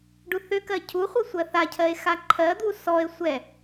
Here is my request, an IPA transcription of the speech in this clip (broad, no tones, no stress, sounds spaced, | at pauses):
ɖ u θ ʏ k ɜ cʰ u χʷ ɜ sʷ ɜ θ a cʰ ɜ e̯ x a ǃʰ ɜ d̪ u s ɔ e̯ sʷ ɛ